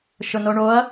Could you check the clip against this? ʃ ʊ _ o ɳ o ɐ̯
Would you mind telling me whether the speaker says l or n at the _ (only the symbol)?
n